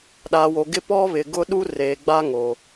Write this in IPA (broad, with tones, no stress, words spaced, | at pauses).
ɗaː˨wo˨ɡɪ˦ pɔ˦βɪ˨ ɡʊ˦ɗu˦ reː˨ɡ͡ba˦ ŋo˨